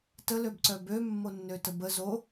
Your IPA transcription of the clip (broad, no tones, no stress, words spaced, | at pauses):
təløbǀœ bømːonːøtə bə zo